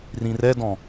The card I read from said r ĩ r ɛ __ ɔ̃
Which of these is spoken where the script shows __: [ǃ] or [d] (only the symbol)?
d